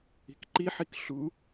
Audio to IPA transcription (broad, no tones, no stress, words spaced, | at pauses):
i̤kǃiħik ɬu